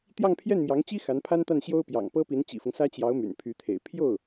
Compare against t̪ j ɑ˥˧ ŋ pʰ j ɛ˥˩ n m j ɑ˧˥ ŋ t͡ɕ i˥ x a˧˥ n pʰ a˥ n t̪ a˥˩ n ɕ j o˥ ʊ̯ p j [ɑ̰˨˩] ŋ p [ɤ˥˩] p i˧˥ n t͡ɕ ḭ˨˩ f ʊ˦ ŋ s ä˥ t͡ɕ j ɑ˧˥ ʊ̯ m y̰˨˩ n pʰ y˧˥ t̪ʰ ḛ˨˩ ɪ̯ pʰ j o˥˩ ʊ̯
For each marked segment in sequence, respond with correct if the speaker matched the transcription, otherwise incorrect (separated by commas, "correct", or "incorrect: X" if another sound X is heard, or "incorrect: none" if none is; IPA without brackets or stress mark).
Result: correct, incorrect: ɤ˥